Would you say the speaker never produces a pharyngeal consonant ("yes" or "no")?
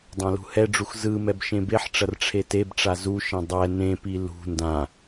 no